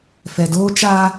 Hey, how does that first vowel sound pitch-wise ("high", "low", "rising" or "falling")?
low